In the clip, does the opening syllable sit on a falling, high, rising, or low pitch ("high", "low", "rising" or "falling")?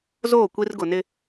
falling